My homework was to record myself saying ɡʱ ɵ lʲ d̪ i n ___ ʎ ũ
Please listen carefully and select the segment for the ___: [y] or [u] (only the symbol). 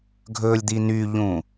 y